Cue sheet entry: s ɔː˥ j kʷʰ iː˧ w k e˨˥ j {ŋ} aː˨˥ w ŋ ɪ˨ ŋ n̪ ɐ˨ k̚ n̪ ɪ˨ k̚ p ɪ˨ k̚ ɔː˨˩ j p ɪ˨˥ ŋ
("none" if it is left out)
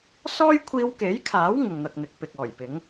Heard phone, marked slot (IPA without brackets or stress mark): kʰ